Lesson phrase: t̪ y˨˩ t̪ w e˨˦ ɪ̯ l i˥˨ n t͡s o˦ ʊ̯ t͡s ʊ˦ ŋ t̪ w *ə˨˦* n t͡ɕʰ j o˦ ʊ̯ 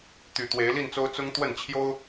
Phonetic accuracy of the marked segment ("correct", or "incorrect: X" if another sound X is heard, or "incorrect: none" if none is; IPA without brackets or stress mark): incorrect: ə˥˨